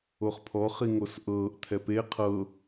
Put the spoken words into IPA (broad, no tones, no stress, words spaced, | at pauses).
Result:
oχpʰɔχi ŋosʔɤːʔt̪ʰɛ pe qʰɤ